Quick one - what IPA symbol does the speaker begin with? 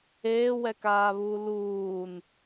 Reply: eː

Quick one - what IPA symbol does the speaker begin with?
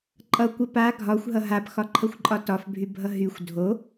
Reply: ǃʼ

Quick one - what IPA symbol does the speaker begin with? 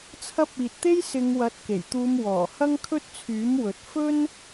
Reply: t͡sʰ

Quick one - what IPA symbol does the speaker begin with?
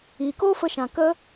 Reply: iː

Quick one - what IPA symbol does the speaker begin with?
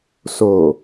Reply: s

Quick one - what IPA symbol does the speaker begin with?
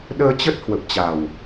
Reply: ɗ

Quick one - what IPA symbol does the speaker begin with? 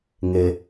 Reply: ŋ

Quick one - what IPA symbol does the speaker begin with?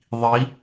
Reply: ðˤ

